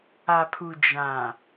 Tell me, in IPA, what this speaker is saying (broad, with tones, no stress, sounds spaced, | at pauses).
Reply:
a˨ pʰ u˨ d͡ʒ ã˨